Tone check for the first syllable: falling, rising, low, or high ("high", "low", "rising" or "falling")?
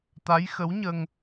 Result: rising